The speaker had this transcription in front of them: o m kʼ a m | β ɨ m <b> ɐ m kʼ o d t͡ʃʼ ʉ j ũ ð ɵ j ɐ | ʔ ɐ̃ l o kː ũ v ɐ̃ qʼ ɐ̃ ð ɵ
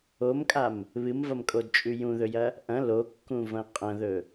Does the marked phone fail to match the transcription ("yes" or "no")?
yes